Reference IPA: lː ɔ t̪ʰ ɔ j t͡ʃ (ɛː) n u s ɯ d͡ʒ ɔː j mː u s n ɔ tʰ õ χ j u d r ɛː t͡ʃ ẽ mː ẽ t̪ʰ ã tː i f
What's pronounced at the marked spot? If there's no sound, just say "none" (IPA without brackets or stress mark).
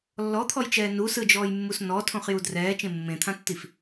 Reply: ɛː